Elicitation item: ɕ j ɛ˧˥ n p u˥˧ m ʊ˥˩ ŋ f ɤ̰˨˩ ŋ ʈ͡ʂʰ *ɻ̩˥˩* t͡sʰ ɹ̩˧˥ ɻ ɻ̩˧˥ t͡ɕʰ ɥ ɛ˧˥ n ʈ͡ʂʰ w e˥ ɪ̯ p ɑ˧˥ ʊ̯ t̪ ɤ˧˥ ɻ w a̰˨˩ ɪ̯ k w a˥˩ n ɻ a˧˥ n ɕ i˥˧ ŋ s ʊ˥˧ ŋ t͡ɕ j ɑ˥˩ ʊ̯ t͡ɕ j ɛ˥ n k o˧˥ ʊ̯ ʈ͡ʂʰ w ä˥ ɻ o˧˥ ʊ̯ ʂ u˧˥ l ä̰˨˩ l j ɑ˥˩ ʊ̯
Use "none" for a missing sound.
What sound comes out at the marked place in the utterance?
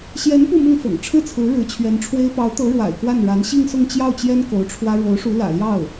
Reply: ɻ̩˥˩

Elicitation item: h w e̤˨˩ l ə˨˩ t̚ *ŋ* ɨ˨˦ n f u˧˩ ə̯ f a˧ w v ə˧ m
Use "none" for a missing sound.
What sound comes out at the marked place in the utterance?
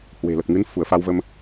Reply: ŋ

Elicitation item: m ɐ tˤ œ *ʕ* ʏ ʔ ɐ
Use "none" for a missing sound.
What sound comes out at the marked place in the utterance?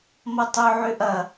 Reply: ʕ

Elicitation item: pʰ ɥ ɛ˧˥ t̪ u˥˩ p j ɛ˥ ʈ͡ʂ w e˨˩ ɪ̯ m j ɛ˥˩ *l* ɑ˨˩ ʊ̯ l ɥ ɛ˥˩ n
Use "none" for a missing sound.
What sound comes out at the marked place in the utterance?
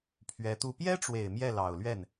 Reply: l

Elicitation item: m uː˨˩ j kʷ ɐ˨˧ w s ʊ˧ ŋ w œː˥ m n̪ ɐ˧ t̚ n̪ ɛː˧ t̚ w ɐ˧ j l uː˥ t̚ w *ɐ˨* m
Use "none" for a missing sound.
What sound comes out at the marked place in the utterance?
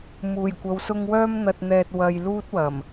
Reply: ɐ˨˩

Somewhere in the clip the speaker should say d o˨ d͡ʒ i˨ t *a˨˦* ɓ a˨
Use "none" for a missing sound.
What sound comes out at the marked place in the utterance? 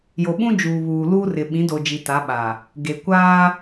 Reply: a˨˦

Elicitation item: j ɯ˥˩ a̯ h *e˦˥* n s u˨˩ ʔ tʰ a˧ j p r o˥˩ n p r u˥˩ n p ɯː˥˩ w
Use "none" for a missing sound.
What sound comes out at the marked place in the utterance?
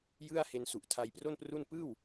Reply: e˧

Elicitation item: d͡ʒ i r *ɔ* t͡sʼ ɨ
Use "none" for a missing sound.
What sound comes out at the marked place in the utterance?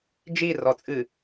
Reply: ɔ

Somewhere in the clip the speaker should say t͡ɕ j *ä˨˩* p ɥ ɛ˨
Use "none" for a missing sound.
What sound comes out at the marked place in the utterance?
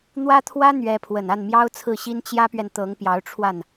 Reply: ä˥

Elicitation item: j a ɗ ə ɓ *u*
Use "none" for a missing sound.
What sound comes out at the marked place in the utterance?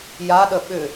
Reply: ʏ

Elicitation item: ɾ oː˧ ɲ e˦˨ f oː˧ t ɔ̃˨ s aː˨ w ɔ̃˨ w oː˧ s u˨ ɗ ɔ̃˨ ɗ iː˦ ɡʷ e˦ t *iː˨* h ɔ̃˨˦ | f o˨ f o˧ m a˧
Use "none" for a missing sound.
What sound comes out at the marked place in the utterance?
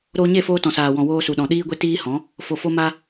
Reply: iː˦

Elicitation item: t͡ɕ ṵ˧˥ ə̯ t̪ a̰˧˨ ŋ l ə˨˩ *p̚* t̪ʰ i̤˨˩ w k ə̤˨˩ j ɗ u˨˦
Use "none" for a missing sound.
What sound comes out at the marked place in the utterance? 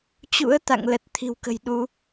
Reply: t̚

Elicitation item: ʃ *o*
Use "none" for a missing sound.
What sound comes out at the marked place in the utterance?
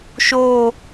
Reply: o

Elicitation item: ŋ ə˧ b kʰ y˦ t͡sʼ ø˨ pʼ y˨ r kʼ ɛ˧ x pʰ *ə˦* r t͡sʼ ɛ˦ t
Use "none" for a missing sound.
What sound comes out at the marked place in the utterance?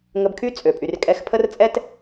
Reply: ə˦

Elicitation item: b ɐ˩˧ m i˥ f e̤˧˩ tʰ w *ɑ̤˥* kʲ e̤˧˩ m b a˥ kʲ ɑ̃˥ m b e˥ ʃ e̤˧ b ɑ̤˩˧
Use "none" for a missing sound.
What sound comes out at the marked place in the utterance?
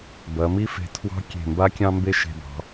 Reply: ɑ̤˥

